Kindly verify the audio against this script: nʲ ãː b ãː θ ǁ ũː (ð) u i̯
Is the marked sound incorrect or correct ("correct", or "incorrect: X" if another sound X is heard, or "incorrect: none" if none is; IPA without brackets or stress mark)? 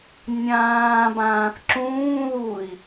correct